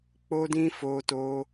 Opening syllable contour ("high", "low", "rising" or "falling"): high